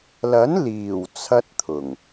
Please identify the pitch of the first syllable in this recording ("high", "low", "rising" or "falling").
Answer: rising